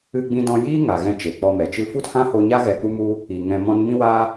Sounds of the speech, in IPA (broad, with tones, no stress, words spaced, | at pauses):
ɨ˧ɡ͡bĩ˧dɔ̃˧jiː˦ ŋa˨ɣɛ̃˧ t͡ʃe˨k͡pɔ˧mɛ˨t͡ʃɨ˦ fu˦thã˦ho˧ɲa˦ ɣɛ˧k͡pu˦mu˦ | i˨ ŋɛ̃˧mɔ̃˦n mĩ˦wa˦